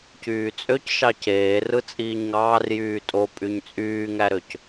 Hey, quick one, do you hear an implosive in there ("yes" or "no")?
no